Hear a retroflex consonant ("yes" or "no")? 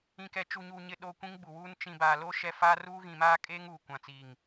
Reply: no